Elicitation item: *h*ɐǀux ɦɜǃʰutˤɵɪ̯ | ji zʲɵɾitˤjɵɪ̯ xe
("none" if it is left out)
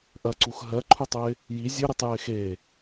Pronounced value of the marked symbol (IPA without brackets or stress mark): ʔ